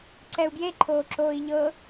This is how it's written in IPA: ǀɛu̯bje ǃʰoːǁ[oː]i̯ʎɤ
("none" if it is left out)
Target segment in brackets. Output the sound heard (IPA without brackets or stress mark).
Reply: oː